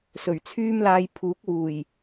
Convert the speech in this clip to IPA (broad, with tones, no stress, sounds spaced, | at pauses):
s ɵ˨˩ ɥ t͡sʰ yː˥ m l aː˧ j pʰ uː˨˥ k̚ w uː˨˩ j